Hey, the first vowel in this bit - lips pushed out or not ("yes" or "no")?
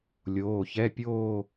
yes